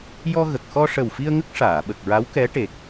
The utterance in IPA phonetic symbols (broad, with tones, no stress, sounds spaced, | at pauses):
j ɔ˧ ɣ ə˨˩ k̚ x ɔ˧ ʂ ə˨˩ w f i˧ ə̯ ŋ ə˦˥ k̚ ʂ aː˨˩˨ ɓ ə˨˩ k̚ ɹ a˧˥ w k ɛ˧˥ ʈ e˨˩ k̚